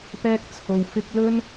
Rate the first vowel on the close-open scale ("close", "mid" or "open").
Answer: mid